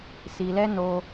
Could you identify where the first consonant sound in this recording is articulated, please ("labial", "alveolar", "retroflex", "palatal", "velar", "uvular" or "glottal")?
alveolar